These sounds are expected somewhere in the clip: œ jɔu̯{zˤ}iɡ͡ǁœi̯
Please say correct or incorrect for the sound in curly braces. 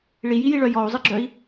correct